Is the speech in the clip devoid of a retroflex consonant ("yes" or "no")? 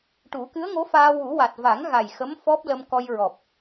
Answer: no